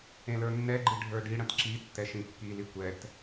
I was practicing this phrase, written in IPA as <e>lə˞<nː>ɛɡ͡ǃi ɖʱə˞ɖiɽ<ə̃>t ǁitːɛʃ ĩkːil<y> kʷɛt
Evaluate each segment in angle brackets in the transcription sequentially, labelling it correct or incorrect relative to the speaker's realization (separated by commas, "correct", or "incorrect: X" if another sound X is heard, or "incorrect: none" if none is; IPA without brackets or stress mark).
incorrect: ẽ, correct, correct, incorrect: i